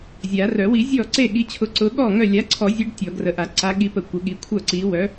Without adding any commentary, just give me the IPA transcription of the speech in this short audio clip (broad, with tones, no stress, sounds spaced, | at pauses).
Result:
zʲ a˨˩˦ r œ˨˩˦ w i˨˩˦ zʲ ɔ˥˩ ǀ e˥˩ ɠ i˨˥ t͡ɕʰ ʊ˨˥ ǀ ʊ˨˥ ɠ ɔ˥˩ ŋ œ˥˩ lʲ a˨˥ ǀʰ ɔ˨˩˦ zʲ e˨˥ ɖ tʲ ɔ˨˩˦ ɡ r ə˨˩˦ ʔ a˨˩˦ ǀ a˨˥ ɠ i˨˥ p ə˨˩˦ kʷ ə˨˩˦ ɠ i˨˥ kʷʰ œ˥˩ ǀ i˨˥ w œ˨˥